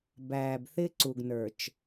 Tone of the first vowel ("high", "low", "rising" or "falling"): low